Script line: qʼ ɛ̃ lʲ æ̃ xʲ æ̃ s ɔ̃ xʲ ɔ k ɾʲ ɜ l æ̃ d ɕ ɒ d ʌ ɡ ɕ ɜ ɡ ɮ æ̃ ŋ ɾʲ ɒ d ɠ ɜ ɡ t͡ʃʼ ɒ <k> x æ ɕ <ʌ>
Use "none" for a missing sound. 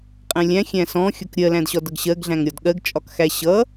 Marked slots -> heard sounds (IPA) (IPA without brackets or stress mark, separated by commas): k, ʌ